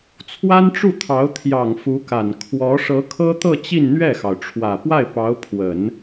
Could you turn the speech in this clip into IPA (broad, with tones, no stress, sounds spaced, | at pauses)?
t͡sʰ w a˥ n ʈ͡ʂ u˥˩ t̪ʰ ɑ˧˥ ʊ̯ t̪ʰ j ɑ˨˩ ŋ f u˧˥ k a˨˩ n kʰ w ɔ˧˥ ʂ ɤ˧˥ kʰ ɤ˥ t̪ ɤ˥˧ t͡ɕ i˥˧ n n̪ ɥ ɛ˥˩ x ɑ˩ ʊ̯ ʈ͡ʂʰ w ä˨˩ p w a˥˩ ɪ̯ p ɑ˧˥ ʊ̯ pʰ w ə˨˩˦ n